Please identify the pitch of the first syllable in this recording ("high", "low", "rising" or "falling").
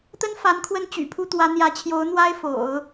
high